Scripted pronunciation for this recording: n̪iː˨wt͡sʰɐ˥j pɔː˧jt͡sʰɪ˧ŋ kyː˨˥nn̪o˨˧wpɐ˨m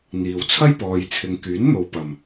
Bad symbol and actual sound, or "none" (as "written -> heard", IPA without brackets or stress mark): none